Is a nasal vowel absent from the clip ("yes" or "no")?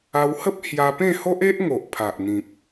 no